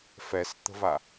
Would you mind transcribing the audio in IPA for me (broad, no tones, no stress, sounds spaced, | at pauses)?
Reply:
f ɛ s t̪ ə̤ v a